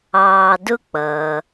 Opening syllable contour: low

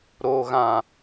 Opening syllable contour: low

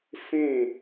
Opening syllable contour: falling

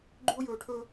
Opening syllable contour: high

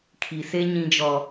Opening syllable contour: low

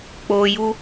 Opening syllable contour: low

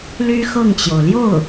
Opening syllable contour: high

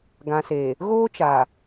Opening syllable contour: low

